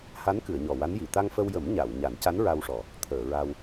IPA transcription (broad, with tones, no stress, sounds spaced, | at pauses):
h a˧˥ n k ɨ˨˩˨ ə̯ ɲ ɔ˨˩ w a˧˥ n j i˨˩˨ t̪ a˧ ŋ f ə˧ w j ə˨˩˦ m ɲ a˨˩˨ w ɲ a˨˩˦ n c a˧˥ n ɹ a˧ w ʂ ɔ˨˩ | t̪ʰ əː˨˩˨ ɹ a˧ w